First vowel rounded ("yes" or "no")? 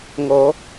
yes